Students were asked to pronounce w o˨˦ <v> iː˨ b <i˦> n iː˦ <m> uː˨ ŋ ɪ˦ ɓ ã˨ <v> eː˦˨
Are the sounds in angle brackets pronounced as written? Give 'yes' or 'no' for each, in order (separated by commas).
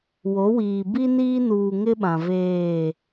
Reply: no, yes, no, yes